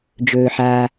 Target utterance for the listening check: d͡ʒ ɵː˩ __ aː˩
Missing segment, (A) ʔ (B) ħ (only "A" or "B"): B